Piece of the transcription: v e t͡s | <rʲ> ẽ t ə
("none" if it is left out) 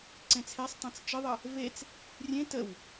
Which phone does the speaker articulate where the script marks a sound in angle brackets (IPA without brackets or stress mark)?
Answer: rʲ